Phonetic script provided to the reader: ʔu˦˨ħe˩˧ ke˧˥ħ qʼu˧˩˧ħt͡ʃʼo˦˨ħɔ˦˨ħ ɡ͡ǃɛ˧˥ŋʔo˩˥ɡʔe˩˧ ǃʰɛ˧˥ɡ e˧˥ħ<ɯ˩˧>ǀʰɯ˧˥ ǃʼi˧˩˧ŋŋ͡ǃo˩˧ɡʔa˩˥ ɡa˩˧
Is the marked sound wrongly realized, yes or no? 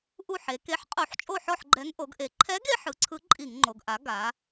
no